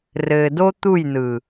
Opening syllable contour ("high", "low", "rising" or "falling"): low